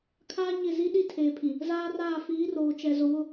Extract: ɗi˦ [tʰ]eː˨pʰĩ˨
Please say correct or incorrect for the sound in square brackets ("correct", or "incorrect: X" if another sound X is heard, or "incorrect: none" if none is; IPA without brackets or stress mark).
correct